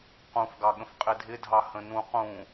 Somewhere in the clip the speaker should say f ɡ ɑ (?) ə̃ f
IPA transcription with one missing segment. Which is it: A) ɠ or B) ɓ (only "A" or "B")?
A